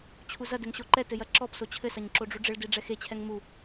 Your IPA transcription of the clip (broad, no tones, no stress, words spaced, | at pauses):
t͡ɕʰuzɐdɛŋ ɕoǃɛtɘ jɐǁɔpso t͡ɕʰɘsɐɲ ǁoɖ͡ʐuɖ͡ʐɘɭde ɖ͡ʐɛxet͡ɕʰɛŋ mu